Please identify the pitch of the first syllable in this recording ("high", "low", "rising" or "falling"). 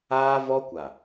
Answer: high